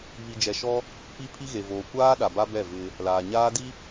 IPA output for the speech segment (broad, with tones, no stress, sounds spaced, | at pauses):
β i˨ d͡ʒ ɛ˨ ʃ ɔ˦ | p i˦ pʰ i˦ ɣ e˨ v oː˨ kʷ aː˦ ɗ a˨ b a˦ b ɛ˦˨ v ɪ˦ | l aː˨ ɲ aː˦ d i˦